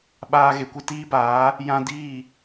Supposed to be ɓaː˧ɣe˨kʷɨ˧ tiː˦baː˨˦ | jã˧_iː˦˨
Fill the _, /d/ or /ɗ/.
d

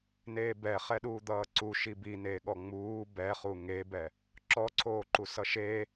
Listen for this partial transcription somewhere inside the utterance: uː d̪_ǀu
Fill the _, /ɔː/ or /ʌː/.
ʌː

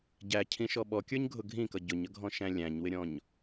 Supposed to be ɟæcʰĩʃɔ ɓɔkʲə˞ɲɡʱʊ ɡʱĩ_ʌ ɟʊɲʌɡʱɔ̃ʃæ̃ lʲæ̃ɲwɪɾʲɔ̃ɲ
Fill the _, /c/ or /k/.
k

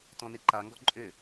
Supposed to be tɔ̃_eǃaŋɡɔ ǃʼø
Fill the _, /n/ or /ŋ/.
n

